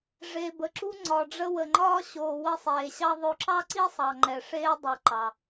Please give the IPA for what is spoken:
ʐ e˩ b ə˩ ǁ u˧ ŋ͡ǀ ɒ˩ ɖ͡ʐ ə˧ w ə˩ ŋ͡ǃ ɒː˧ ɕ oː˩ w ə˧ sˤ eː˩ ɕ ɑ˧ ðˤ o˧ ǁ ɑ˥ ǀ i˥ sˤ ɑ˩ ŋ͡ǃ ɛ˩ ʂ eː˧ dˤ u˩ ǃ ɑ˩

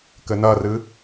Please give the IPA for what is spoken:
k ɘ n ɐ r ɨ

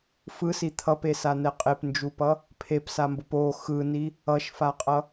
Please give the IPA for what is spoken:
f ɯ s i t̪ʰ ʌ p e s a n ɛ qʼ e p n d͡ʒ u p ʌ | pʰ e p s a m b o p o x ɯ n i | ʌ ʃ f a qʼ ʌ

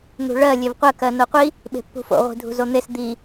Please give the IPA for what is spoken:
n̪ ṳ ɭ ɜ lʲ e v qʷ ɜ k ɜ n o qʷ i | ɓ e̤ pː ṳ f o̰ ʁʷ i̤ dʱ ṳ z o n̪ e s d̪ i

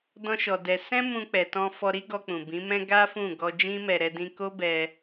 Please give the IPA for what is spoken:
d ɔ̃˦ ʃ ɔ˧ d ɛ˧ s ɛ̃˦ m ũ˧ k͡p ɛ˨ t ɔ̃˧ f ɔ˧ ɾ i˦ ɡ ɔ˧ k͡p ũ˨ b ĩ˨˦ m ɛ̃˦ ɡ a˦ f ũ˦˨ ɡ ɔ˧ d͡ʒ ĩ˦ m ɛ˧ ɾ ɛ˧ d ĩ˧ k o˦ b ɛ˧

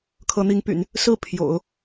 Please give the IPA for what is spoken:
kʰ ɤ˧˥ n̪ i˧˥ ŋ p y̰˨˩˦ n | s ɹ̩˥˩ pʰ j o̰˨˩˦ ʊ̯

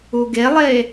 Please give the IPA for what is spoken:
u ɡ e lˠ e

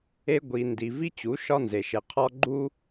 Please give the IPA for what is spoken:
e˦ ɡʷ i˨ n d i˨ v i˦ t͡ɕ u˨˦ ʃ ɒ˦ n z e˨ ʃ e˨ qʰ ɒ˦ ɡ͡ǃ u˦

